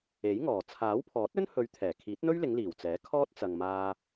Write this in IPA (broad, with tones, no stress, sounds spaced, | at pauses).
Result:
e˨˥ j ŋ ɔː˨˩ t͡sʰ aː˨˥ w pʰ ɔː˨˥ t̚ ɵ˥ n h ɵ˨˧ ɥ t̪ʰ ɛː˨˩ kʰ iː˨˥ t̚ n̪ ɵ˥ ɥ l ɪ˨˧ ŋ l iː˨˩ w t͡s ɛː˨˥ kʰ ɔː˥ t̚ t͡s ɐ˨ ŋ m aː˧